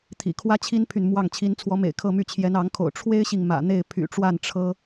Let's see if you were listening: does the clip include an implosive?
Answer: no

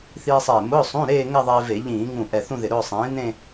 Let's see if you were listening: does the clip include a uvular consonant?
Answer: no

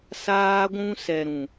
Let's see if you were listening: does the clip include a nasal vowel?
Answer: yes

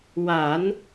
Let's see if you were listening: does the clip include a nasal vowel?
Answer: no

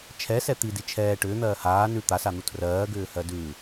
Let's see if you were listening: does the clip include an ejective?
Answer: no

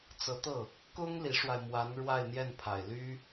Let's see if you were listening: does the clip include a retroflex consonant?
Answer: yes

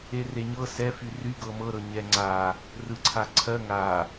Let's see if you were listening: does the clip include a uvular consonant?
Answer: no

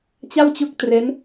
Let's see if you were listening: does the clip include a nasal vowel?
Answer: no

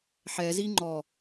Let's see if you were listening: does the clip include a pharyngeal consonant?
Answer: yes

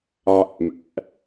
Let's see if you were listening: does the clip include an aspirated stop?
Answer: no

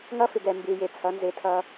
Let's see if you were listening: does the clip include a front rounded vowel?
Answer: no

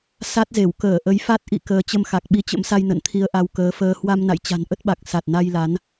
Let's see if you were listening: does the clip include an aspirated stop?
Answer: yes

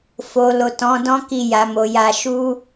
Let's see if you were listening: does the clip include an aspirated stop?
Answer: no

